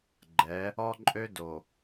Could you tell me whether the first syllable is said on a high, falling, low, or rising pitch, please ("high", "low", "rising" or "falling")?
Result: rising